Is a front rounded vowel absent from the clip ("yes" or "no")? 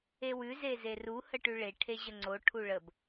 yes